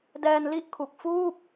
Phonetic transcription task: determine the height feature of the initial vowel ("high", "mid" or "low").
mid